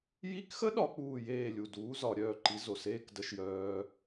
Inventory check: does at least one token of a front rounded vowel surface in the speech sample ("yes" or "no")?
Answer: yes